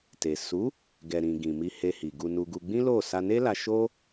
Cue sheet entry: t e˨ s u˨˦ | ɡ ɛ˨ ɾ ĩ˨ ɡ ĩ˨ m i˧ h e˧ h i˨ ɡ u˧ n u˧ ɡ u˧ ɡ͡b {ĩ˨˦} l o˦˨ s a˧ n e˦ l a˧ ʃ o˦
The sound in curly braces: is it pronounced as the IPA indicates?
no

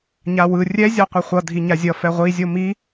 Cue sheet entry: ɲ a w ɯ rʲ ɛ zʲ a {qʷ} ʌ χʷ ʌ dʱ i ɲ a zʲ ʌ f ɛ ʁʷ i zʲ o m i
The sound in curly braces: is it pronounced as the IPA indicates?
yes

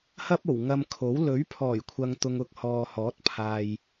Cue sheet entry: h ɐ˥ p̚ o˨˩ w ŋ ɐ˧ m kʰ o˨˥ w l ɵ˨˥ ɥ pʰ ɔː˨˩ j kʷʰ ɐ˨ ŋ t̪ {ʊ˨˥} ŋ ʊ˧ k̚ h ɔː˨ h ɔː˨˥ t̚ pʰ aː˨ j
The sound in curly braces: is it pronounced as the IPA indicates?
no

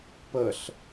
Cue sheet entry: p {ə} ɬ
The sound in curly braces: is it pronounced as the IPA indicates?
yes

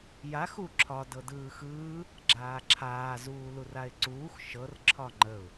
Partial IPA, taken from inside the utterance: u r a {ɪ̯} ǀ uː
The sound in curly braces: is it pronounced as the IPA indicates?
yes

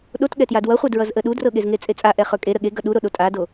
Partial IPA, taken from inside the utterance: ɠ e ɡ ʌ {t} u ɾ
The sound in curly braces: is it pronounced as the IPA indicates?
no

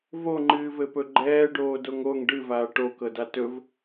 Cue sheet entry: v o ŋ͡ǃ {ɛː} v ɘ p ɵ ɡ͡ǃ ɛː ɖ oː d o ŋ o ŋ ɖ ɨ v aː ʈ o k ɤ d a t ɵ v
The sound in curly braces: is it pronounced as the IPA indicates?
no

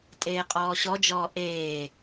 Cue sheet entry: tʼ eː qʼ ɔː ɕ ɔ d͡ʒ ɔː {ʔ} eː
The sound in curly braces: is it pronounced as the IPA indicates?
yes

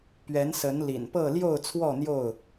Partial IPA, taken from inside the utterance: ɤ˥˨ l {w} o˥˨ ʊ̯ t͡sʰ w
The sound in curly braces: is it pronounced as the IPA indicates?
no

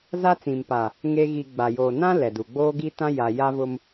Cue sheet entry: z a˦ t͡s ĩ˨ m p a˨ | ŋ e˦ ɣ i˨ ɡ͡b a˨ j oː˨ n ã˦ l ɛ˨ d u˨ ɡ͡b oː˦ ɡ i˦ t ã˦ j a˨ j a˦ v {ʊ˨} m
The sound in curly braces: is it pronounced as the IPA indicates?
no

